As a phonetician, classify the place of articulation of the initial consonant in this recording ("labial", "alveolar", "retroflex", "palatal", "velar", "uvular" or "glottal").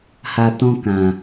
glottal